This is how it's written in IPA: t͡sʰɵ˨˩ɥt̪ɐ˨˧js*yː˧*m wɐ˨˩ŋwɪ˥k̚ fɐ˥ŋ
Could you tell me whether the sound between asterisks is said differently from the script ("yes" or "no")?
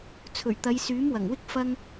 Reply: yes